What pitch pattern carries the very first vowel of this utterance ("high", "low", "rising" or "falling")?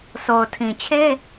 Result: low